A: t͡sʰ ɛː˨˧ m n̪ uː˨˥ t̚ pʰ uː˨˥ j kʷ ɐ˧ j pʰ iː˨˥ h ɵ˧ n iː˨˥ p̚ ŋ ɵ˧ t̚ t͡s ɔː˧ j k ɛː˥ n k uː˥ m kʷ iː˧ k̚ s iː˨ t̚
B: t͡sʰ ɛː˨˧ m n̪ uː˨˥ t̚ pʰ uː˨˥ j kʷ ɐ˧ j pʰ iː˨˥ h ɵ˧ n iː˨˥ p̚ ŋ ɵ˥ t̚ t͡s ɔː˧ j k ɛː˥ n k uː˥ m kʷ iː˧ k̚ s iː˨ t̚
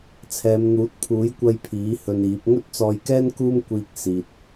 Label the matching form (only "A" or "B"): B